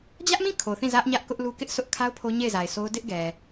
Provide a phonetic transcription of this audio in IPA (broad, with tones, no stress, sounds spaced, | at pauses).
d͡ʑ ä˦ ʔ m ĩ˦˨ kʰ o˨ θ ĩ˦˨ z ä˦ ʔ ɲ ä˦ ʔ k ʊ˦ ʔ l u˦ k ɪ˦ ʔ sʰ ʊ˦ ʔ kʰ a˦ ʊ̯ pʰ o˦ ɲ e˦˨ ɪ̯ z a˨ ɪ̯ s o˦ ʊ̯ d ɪ˦ ʔ ɡ ɛ˨